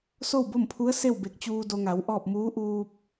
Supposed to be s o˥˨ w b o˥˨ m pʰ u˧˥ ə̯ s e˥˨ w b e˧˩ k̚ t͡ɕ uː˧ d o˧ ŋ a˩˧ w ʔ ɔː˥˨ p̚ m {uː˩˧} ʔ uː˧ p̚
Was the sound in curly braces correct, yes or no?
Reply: no